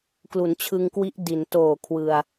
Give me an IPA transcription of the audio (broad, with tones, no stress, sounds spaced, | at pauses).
k l u˩˦ n t͡ɕʰ ɯ˧ ŋ k w i˦˥ ʔ d i˩˦ n t oː˨˩ kʰ w ɯ˧ a̯